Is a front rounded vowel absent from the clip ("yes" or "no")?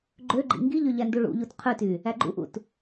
no